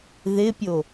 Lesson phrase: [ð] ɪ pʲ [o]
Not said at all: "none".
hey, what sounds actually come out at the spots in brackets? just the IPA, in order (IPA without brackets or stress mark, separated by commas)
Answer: ð, o